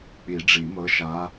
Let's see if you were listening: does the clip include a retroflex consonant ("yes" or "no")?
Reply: yes